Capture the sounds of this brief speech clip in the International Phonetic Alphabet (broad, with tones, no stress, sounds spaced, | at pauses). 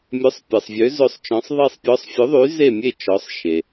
mʲ œ˩˥ sˤ pʲ ɛ˩ sˤ vʲ ø˩˥ z ɵ˧˩ sˤ t͡ʃ ɔ̃˩˥ sˤ ðˤ i˧˩ sˤ pʲ ɔ˩˥ sˤ fʲ ɵ˩˥ ðˤ y˩˥ z e˧˩ mʲ e˧˩ t͡ʃ ɔ˩˥ sˤ ʃ e˩